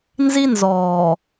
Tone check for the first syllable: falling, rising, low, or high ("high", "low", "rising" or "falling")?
high